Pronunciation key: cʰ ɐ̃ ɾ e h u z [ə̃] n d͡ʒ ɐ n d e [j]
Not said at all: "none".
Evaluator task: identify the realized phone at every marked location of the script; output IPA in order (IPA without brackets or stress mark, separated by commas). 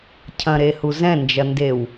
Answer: ɛ̃, w